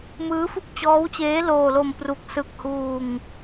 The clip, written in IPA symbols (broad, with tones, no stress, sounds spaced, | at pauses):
m ɯː˦˥ f u˥˩ k̚ t͡ɕ ɔː˦˥ w t͡ɕ eː˦˥ l oː˧ l o˧ m p r u˨˩ k̚ s ɯ˨˩ k̚ h uː˧ ŋ